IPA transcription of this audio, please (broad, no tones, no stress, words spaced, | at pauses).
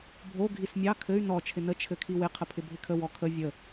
bʱo ɡʱismʲɑ kʰɘy̯ nɔ t͡ʃʰɪnə t͡ʃʰɘkʰiwɪ qʰəpʰɪbʱɪkʰə wɔkʰə vʲə